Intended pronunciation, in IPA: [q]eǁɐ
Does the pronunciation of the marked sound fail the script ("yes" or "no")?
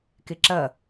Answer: yes